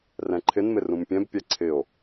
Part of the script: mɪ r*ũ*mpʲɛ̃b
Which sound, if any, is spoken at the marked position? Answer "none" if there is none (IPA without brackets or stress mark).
ũ